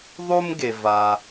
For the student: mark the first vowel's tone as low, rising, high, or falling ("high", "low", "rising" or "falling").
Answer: high